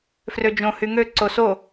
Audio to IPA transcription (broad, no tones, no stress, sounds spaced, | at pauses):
f r ø d͡ʒ õ h y ŋ ø ǀ o s o